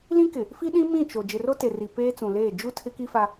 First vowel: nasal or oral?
nasal